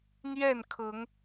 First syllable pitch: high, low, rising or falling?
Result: falling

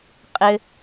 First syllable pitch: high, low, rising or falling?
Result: high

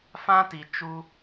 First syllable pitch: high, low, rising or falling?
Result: high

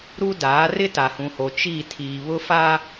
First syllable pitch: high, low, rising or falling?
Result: high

